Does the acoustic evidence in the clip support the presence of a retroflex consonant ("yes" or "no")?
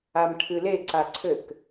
yes